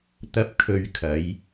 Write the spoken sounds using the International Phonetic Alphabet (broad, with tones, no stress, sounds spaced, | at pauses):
t̪ ɐ˥ p̚ kʰ ɵ˧ ɥ kʰ ɐ˨˥ j